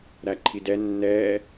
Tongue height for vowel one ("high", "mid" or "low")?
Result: low